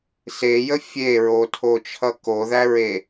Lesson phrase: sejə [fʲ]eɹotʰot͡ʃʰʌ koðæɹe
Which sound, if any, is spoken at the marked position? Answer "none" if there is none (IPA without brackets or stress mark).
fʲ